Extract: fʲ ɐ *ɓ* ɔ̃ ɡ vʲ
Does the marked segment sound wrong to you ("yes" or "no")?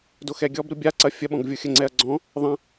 no